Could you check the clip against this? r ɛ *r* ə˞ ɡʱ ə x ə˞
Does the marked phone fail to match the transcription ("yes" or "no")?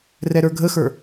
yes